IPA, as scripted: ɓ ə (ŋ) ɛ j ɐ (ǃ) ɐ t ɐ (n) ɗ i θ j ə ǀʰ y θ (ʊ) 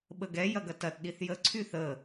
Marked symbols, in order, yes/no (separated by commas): no, no, no, no